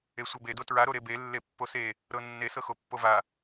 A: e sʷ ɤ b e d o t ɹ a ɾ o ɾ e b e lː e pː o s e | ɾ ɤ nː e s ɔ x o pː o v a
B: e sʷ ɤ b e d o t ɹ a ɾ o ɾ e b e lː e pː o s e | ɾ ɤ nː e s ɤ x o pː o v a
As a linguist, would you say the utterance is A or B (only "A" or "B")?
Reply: B